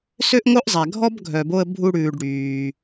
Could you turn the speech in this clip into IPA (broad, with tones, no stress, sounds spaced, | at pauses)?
s ø˥ ʔ ŋ o˥ ʔ zˤ æ˩ ɡʱ ɔ˥ b ɡʱ œ˨ b o˦ ə̯ bʱ u˦ ɽ ʉː˨ ɖ ɽ yː˩